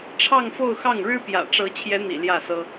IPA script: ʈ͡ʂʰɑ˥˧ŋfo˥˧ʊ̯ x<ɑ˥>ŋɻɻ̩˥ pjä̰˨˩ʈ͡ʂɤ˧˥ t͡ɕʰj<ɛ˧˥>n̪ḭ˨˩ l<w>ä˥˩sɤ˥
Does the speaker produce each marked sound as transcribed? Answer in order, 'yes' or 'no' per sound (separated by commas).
no, yes, no